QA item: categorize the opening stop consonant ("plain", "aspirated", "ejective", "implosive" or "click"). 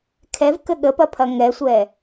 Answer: aspirated